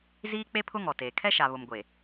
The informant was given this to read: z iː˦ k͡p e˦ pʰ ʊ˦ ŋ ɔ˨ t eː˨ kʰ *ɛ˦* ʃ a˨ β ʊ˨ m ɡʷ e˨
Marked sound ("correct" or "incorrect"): correct